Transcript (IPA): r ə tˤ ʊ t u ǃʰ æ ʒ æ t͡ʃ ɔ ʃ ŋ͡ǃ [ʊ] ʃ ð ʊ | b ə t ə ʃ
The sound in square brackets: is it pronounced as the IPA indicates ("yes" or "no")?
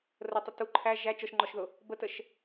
no